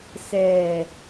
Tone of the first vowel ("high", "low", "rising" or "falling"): low